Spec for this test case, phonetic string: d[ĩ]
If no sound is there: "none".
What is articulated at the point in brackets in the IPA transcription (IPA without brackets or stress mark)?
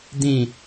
ĩ